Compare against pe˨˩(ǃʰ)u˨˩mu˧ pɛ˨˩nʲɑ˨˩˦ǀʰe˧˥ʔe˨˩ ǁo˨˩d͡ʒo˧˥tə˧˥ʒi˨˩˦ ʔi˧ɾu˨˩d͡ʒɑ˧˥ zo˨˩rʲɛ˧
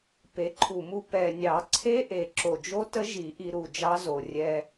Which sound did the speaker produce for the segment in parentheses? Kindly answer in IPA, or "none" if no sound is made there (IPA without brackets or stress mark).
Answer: ǃʰ